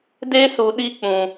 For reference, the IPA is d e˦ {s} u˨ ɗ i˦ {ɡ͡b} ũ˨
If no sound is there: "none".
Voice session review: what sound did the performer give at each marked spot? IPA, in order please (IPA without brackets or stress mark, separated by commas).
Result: s, k͡p